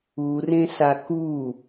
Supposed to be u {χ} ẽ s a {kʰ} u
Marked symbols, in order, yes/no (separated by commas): no, no